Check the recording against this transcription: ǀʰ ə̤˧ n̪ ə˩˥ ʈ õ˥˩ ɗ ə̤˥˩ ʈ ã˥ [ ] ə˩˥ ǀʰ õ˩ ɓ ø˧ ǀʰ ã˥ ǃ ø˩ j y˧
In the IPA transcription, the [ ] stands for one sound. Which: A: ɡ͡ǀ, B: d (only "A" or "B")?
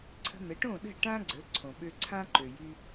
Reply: A